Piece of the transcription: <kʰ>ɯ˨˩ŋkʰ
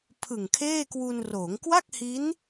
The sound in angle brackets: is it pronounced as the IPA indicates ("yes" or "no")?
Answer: no